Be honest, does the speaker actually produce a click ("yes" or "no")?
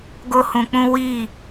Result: no